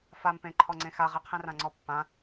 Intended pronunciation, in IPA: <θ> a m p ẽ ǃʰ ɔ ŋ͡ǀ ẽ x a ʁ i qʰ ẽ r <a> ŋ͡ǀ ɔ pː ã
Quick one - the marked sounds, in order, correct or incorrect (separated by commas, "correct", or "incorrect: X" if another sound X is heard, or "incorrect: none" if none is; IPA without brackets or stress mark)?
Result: incorrect: f, incorrect: ã